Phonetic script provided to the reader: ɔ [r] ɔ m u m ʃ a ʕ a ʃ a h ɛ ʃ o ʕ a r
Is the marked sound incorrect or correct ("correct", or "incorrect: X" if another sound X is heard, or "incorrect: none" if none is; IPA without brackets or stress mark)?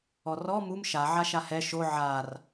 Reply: correct